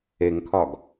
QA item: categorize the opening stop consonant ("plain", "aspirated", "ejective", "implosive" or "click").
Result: aspirated